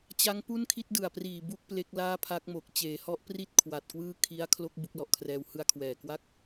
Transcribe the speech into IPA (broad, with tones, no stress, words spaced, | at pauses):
t͡ɕa˦˥ŋpu˥˩nkʰi˥˩t̚ dɯ˨˩a̯priː˨˩ bu˥˩k̚ ple˦˥k̚ laː˥˩pʰa˦˥k̚mo˨˩k̚ t͡ɕeː˩˦hɔ˦˥ʔpri˥˩t̚ kʰwa˨˩t̚kwɯː˥˩ kʰi˦˥a̯kʰlo˥˩k̚ bu˥˩k̚lɔ˨˩ʔkʰrɛː˧w hɯ˧a̯kʰwɛː˨˩kwa˥˩k̚